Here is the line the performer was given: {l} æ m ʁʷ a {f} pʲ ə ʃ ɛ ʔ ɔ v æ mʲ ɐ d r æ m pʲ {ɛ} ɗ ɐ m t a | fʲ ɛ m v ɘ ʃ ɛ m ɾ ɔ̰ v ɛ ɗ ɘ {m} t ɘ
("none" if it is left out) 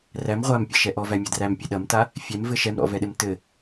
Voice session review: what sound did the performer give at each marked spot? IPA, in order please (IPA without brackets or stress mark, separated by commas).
r, m, ɛ, m